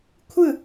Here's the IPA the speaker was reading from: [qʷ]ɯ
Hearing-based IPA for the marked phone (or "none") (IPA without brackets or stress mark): kʷʰ